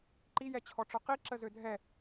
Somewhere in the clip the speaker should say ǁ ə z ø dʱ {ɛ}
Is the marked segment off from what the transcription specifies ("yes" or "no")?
no